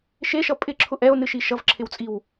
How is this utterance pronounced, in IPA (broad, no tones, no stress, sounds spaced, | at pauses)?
ʃ e ʃ ʌ pʼ ɪ ǁʰ ʊ ʔ ɛ o̯ n ɨ ʃ i ʃ ʌ v ǁʰ ɪ w t͡sʼ i w